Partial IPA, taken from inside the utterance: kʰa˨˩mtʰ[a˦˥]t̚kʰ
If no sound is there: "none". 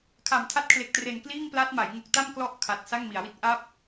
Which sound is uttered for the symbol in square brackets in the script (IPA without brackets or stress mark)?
a˦˥